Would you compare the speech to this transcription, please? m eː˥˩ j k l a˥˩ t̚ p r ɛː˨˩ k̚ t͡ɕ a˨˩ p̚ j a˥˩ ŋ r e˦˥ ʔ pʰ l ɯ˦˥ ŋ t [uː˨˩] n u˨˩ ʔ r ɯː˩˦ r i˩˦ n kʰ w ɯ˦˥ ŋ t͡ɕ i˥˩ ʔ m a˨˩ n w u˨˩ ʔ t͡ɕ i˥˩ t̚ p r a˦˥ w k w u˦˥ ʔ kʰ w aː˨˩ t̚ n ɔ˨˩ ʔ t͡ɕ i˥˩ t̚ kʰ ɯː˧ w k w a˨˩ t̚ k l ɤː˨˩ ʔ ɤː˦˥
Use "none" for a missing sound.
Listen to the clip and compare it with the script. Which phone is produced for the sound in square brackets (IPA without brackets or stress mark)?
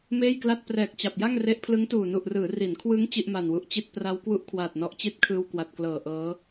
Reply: uː˨˩